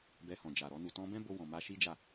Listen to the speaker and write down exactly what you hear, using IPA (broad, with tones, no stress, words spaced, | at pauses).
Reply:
bɛ˧hɔ̃˨d͡ʒa˨ɾɔ˧ nu˨tɔ̃˧bɛ̃˦bo˧ wɔ̃˨ma˧ʃi˦d͡ʒa˦˨